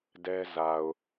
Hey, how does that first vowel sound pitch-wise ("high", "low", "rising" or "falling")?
high